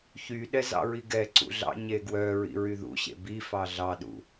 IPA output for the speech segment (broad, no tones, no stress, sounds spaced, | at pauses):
ç y ɗ ɛ z ɑ̰ ɹ i ɡ ɛ ǀ ṵ ɮ ɑ̰ ɲ e ɡ w œ ɹ ḭ ɹ y ð ṵ ɕ ḛ b i f ɑ ɮ ɑ ɗ ṵ